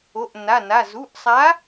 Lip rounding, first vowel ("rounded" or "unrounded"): rounded